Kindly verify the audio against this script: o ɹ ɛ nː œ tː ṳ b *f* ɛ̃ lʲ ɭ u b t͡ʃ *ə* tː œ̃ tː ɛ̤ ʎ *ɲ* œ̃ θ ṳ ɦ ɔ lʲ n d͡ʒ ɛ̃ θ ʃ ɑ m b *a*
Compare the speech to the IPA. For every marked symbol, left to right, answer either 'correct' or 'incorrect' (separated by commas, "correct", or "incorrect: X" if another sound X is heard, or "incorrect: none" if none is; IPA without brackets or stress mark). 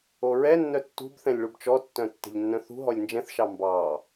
incorrect: θ, incorrect: ɔ, incorrect: nː, incorrect: ɑ